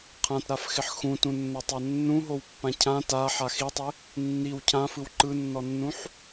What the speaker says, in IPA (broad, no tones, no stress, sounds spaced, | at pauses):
qʰ ã t ɾ a f x ɪ ħ x ũ t ũ nː o tˤ a nː ũ ɦ o w pː ã cʰ ã t a ħ a x i tˤ ɪ | nː i w cʰ ã f ɯ w ǃ ɯ nː ɔ nː ũ ħ